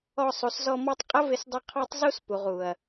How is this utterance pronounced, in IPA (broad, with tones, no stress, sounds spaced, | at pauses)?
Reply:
ɔ˧ sˤ u˨ s z ɔ˧ m ɔ˧ tˤ qʼ ə˦ v ɪ˧ s dˤ ʊ˧ qʰ ɑ˦ tˤ z u˦ s p u˨ ʁ u˨ ɐ̯